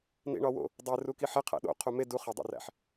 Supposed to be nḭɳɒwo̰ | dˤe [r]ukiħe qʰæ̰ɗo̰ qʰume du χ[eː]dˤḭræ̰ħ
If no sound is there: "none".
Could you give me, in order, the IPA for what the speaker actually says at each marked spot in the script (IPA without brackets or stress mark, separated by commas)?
r, e